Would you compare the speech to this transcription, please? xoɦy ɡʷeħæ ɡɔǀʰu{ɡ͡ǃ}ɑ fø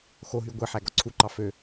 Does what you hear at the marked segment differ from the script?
yes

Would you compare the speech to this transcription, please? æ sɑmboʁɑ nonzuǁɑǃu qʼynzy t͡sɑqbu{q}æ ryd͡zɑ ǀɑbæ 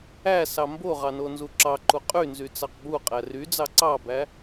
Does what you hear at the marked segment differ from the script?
yes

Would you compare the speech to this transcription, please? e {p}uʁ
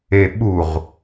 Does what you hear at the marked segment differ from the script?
yes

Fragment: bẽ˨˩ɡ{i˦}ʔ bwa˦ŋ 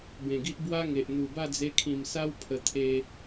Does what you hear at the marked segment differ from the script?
no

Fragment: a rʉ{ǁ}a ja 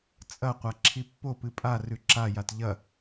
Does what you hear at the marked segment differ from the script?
no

